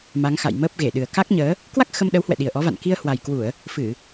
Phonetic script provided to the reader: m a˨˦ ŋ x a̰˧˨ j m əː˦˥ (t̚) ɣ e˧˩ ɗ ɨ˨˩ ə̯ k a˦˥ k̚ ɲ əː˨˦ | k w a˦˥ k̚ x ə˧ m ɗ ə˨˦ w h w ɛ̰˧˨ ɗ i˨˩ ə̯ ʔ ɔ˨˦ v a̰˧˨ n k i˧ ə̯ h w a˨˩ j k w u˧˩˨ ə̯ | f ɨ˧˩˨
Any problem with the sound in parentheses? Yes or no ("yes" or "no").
yes